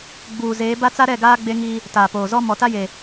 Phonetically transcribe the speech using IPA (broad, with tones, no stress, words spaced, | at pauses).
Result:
ɡ͡buː˨zeː˨˦ba˦t͡sa˦ ɾɛ˦˨ɡaː˦ ɡ͡be˦ŋi˦ | taː˨poː˨zɔ˦ mɔ˨ta˦je˨